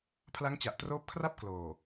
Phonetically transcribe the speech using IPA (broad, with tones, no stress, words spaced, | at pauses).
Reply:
pʰla˦˥ŋt͡ɕa˨˩ʔtroː˦˥p̚kʰra˥˩p̚ kloː˨˩